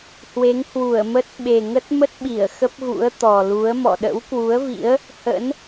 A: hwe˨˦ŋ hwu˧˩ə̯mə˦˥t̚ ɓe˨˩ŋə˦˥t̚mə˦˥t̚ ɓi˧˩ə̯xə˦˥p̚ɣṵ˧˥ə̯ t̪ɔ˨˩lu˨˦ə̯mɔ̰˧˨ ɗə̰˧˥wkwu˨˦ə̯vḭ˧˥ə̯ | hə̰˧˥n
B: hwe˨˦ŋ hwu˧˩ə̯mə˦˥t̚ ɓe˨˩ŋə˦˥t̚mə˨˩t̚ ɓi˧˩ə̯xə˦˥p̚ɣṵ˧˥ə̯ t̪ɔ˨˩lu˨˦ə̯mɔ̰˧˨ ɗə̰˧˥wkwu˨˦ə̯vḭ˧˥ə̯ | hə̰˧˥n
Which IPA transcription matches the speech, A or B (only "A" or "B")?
A